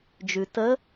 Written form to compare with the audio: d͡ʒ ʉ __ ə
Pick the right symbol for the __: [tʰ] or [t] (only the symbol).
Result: t